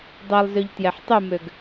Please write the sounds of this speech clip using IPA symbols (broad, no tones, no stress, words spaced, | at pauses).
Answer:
dˤɛlˠzøʎ tjɛħtˤumøɡ